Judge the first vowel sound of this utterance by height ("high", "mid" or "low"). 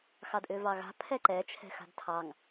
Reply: low